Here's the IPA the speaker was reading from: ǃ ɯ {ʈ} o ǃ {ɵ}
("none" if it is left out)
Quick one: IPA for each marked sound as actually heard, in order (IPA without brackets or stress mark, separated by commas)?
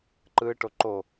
ʈ, o